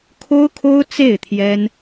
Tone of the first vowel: high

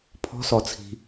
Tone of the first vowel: high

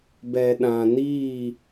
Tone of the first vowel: low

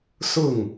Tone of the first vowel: falling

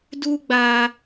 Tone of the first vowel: high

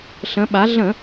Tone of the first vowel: rising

